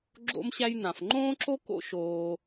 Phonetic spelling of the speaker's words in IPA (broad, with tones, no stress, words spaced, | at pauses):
ɡ͡ǁo̰˧mɕæ˧jnã˩f ŋ͡ǃõː˥ǁo˥ ko̰˥ʃoː˧